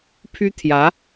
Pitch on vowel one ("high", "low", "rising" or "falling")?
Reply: high